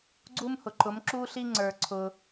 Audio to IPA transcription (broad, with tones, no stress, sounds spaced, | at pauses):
ɡ͡ǀ u˥ m h ʊ˨ ǃ ʊ˨˥ m ǁ u˥ ɬ i˥ ŋ͡ǀ ə˞˨ ǀʰ ʊ˨